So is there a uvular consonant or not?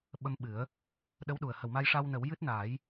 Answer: no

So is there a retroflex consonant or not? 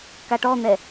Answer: yes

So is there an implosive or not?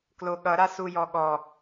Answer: yes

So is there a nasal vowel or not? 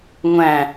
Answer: yes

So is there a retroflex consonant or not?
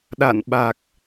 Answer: no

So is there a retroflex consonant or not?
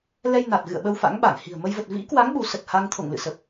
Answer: no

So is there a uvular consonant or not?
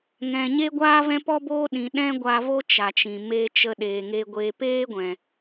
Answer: no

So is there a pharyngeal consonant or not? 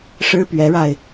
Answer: no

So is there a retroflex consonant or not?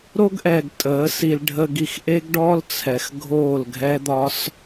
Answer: yes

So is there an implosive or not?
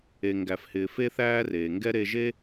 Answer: no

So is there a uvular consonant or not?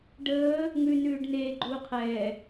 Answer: yes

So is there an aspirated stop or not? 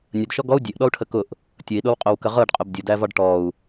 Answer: yes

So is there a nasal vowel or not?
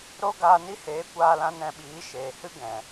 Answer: yes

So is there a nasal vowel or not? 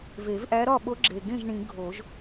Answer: yes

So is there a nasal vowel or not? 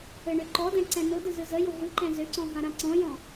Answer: yes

